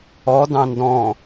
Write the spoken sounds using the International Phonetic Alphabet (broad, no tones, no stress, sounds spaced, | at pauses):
ɔ d ɑ̃ n d ɔ̃